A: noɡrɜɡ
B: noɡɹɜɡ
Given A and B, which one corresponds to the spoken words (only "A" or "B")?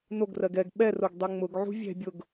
A